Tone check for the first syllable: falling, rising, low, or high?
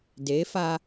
rising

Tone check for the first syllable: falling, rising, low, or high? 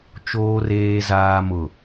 low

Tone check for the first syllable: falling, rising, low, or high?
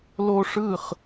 high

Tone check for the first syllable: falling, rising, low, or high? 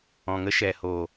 low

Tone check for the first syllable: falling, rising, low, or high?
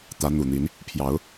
rising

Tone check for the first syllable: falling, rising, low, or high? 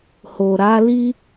low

